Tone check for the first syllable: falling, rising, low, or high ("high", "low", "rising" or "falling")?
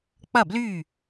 falling